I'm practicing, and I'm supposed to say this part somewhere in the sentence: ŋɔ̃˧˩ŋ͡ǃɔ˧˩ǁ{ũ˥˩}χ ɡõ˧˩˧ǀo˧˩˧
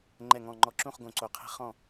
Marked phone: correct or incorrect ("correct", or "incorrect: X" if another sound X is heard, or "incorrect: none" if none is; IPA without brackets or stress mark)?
correct